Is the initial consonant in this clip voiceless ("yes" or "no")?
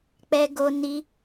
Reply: yes